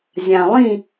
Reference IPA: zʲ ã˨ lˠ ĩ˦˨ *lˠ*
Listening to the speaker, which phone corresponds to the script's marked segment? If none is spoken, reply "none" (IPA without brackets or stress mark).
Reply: none